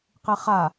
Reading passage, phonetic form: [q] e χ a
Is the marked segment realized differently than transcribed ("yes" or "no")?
no